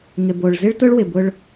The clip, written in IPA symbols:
ŋɪ˨bo˨ɭ zɪ˦ɭtʊ˦ɭwɪ˨bʊ˦ɭ

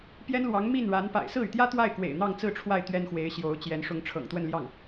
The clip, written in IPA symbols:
pjɛ˥nlwɑ˧˥ŋ mi˥˩nɻa˧˥n pa̰˨˩ɪ̯sɹ̩˥˩y˩t̪jä˥ t̪wa˥˩ɪ̯kwḛ˨˩ɪ̯ n̪ɑ˥˧ŋt͡sɹ̩˥˧ʈ͡ʂʰwa˥˩ɪ̯ t̪ɥɛ˥nxwe˧˥ɪ̯ ɕjo˧˥ʊ̯t͡ɕjɛ˧˥n ʂʊ˧˥ŋʈ͡ʂʰɤ̰˨˩ŋt̪wə˥˧nljɑ˥˩ŋ

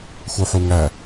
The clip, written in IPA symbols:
xuħuŋæ

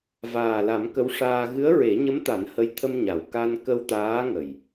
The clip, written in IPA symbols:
vaː˨˩la˨˩˦m kə˧˥wʂaː˧ ɣɨ˧˥ə̯ɹe˨˩˦ɲə˧˥mt̪a˨˩˦n hə˧˥j t̪ʰə˧mɲa˨˩˨w ka˧nkə˧w t̪aː˧˥ŋə˨˩j

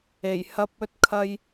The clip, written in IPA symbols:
e˨˩jhɐ˧p̚ɵ˧t̚kʰɐ˧j

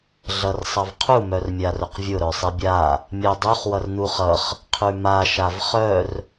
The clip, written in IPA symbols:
ɮʌrsˤʌvqʰu mœrmʲarʊqvʲʊ ɾœsˤibʲa | mʲœdˤuχ wʌrnuχʌχ | qʰʉma ʃavχœr

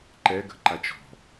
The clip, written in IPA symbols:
ǃɛɡə̤ǃat͡ʃ ɔ̤

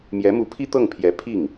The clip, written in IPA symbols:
mjɛ˧˥mu˧˥pʰi˥ t̪ɤ˥˩ŋpʰjɛ˧˥ pʰi˥˩ŋ

